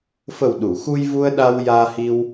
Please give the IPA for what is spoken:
fə˨˩wɗu˨˩˨ xu˧jvu˧ə̯ɗa˧w jaː˧hi˧w

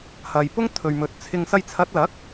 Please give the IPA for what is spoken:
hɐ˨jpʊ˥ŋt̪ʰɵ˨ɥ mɵ˨t̚t͡sʰɪ˧ŋ sɐ˧jt͡sʰɐ˨˥t̚lɐ˨˥k̚

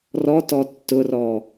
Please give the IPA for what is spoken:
rɔt ɔtːʊrɔ

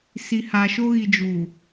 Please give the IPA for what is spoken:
si˨ha˨ʃo˦ ɣi˨d͡ʒu˨

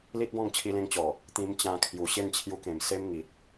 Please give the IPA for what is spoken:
li˦t̚bɔ̃˥˧ŋ t͡ɕʰi˧lẽ˧ŋ t͡ɕɔ˨˩ | t̪ĩ˧m t͡ɕã˧kʰju˨˩ ɕe˥˧nt͡ɕʰju˧kẽ˨˩m se˦mŋi˨t̚

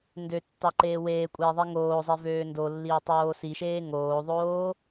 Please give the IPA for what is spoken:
ndøtːɑǃeː weːkʷʼeːðˤi ŋoːzˤivøː ndolːiʊ̯tˤoː siʃeː ŋoːðˤoː

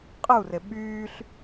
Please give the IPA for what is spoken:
qʼɯu̯re ɓyːɬ

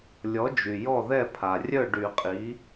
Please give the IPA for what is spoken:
lʲɔ˩˥d͡ʒy˩ jɔ˥˩ðɛ˥˩ pʰa˩rʲœ˥˩ɖy˨˩˦qʼi˩˥

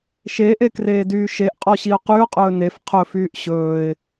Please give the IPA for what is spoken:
ʃeʔekreːdyː ʃeʔqʼɔɕiʊ̯ qyʊ̯qʼɵː nef qʰɵfyːʔ ɕɵːɪ̯

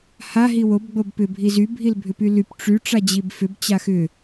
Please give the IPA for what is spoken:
ha ɦiwob ɡ͡bobpʏ bʱizy bʱilbʱʏpylyp ʈ͡ʂy ʈ͡ʂad͡ʑibfʏb t͡ɕaxʏ

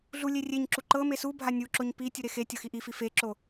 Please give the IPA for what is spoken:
ɮulʲe rʲeɲǁu ǃɤ mesubʱa nʲuǁoɲ pi tʲuɾexe tʲɤxiʔifi feǁo

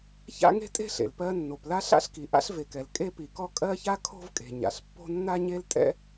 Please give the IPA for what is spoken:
ça̰˥ŋe̤˥tʼe̤˥ɬḛ˩l pɜ˥ nːo˩pla˥ɬa̰˥ɬki˩ ʔa̰˥ɬve˩kɛ˩l kʼe˥ pi˩kɔ˥ kʼɜ˥ça˥ kʰo̤˥vkʼe̤˩ ɲa̰˩ɬpːo̤˥ nːa˥ɲe˥ltʼɛ̰˥

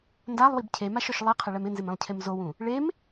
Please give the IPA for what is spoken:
ndalˠwib cʰemaʃɔʃ lˠiqʰɪɭɛm ɪnzɪmẽlˠcʰem zowũ | ɭem

